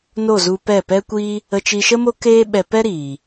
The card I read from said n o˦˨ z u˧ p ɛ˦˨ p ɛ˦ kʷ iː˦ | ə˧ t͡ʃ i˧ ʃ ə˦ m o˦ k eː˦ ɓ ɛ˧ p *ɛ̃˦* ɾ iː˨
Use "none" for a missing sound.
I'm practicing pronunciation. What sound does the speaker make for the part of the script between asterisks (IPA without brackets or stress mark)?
ɛ˦